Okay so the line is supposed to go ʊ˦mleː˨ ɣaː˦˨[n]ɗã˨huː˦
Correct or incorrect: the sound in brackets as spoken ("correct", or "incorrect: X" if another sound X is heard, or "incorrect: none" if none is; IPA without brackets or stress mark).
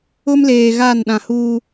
correct